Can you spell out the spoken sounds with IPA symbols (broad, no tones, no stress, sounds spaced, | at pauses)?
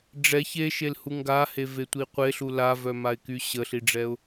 ɖ͡ʐ ɛ ç e ʃ e l h u ŋ ɡ a h e v e tʷ i qʷ e ɬ u l a v œ m a ɪ̯ k y ɕ ə ɬ i ɖ͡ʐ ɛ ʊ̯